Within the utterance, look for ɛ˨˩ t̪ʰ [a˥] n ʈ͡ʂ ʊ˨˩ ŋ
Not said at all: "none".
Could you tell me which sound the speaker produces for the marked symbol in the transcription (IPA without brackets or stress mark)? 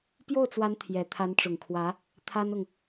a˧˥